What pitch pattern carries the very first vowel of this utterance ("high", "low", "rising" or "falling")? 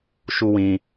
high